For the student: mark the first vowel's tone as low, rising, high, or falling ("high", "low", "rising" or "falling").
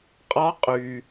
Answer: rising